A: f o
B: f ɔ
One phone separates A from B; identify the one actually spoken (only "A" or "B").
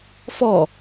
B